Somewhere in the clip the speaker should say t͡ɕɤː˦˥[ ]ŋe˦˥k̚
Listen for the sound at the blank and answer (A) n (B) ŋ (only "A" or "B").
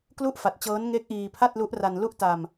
A